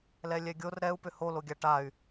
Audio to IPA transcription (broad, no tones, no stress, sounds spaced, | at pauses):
l ɛ lʲ ɛ ɡʲ o r ɾ ɛ u̯ p ʏ h o l o ɡʲ a ʈ a y̯